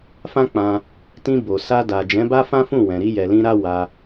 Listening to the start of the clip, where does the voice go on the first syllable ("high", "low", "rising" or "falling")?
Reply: high